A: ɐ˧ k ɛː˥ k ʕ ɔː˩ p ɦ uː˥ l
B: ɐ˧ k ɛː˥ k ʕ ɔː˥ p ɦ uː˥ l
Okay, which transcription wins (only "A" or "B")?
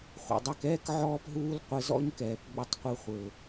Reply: B